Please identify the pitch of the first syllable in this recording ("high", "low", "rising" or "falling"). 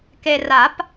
low